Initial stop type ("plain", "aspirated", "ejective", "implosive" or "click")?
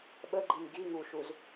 implosive